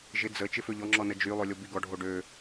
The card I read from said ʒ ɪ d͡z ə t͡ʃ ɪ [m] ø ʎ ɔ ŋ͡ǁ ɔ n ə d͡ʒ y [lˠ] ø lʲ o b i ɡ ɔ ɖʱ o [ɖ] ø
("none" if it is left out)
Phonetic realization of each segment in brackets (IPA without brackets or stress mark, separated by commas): f, lˠ, ɖ